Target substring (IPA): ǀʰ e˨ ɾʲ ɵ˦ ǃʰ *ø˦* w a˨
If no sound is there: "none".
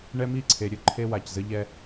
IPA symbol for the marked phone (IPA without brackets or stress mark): e˦